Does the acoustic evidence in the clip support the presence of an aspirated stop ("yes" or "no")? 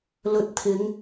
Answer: yes